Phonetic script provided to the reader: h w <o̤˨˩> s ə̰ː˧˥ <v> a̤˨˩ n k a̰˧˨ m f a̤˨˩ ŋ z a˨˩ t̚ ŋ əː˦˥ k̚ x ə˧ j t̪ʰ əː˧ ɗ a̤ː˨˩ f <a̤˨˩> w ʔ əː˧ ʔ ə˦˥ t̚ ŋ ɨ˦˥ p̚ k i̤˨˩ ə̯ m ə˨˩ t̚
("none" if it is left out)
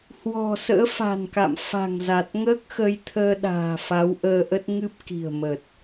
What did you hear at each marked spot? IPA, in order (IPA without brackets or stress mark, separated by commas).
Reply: ɔ̤˨˩, f, a˨˦